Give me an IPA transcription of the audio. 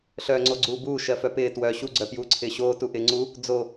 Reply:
ɬ œː ŋ͡ǀ o ɡ͡ǀ uː b uː ʃ ɜ f œ p ɪː t w œ ɕ u ɡ͡ǀ œ p j uː ǀʰ ɪː ɕ oː t u ʔ ɪː ŋ͡ǀ u | d͡z o

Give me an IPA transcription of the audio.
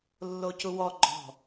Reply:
lː o c u w ɔ ɡ͡ǃ ɔ̤

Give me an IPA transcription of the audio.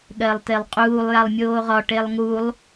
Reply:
ɠ ɜ lˠ t e lˠ qʼ uː lˠ j a lˠ mʲ oː ʁ ɒ ʈ e lˠ ŋ u lˠ

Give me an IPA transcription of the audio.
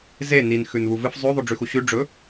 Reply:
z e n i n x ʉ n β u v ɨ f zˤ ʉ ðˤ u ɖ͡ʐ ʉ x u ɕ ʉ ɖ͡ʐ ɵ

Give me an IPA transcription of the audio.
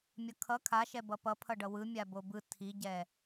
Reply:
mʲ ʌ kʰ ʌ kʰ a ʃ ɛ b ʌ p ʌ pʰ ʌ ɖ ʌ w ɯ mʲ a b o b ɯ tʰ i ɟ ɛ

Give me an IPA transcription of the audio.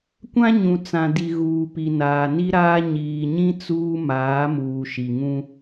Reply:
kʷ ã˦ ɲ ũ˨ t͡s ã˨ d i˨ ɣ uː˨ p i˨ n aː˨ n i˦ ɾ aː˦ ɲ iː˨ ɲ ĩ˦ t͡s uː˦ m aː˨˦ m uː˨ ʃ i˨ ŋ ũ˦

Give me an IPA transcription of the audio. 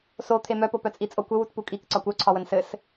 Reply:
s o t̪ʰ e m œ p o p œ t͡sʼ i t͡sʼ o kʷ ɘ w u t p u kʼ i k ǀ ɒ kʷ œ ǀʰ ɒ w ə n s ɘ s

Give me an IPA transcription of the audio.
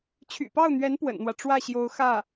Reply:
t͡ɕʰ y̰˨˩ p ɑ˥˩ ʊ̯ n̪ ɥ ɛ˧˥ n p w ə̰˨˩ n n̪ w ä˦ ʈ͡ʂ w ä˥˩ ɕ j o˧˥ ʊ̯ x ä˥˩

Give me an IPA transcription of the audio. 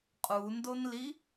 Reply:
qʼ u n d o n l i

